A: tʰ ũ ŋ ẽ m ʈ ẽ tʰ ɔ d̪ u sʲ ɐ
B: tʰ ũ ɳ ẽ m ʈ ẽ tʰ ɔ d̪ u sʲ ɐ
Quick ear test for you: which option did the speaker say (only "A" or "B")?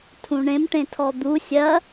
B